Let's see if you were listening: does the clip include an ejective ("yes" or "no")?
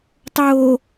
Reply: no